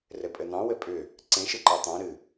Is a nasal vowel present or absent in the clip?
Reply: present